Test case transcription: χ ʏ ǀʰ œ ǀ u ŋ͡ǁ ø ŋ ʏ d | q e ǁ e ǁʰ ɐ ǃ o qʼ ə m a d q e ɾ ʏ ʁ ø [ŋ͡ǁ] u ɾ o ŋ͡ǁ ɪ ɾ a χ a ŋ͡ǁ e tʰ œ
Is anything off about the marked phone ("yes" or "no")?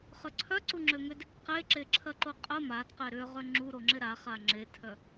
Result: no